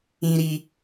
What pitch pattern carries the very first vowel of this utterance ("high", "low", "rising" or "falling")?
high